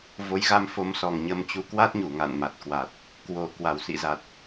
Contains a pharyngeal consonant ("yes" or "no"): no